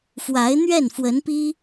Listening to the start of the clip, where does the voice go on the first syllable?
rising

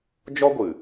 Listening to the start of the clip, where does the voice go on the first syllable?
high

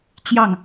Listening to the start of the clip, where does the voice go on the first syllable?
falling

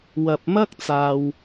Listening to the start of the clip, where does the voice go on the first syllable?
low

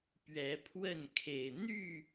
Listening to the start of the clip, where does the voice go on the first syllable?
rising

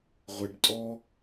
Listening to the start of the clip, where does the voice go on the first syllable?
low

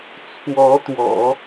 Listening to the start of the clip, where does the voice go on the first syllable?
rising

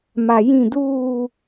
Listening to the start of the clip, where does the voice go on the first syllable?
low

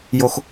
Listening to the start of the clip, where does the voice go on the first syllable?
high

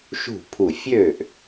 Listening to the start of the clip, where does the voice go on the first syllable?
falling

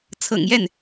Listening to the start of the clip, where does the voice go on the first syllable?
low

